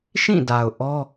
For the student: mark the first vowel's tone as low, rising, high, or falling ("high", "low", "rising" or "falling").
falling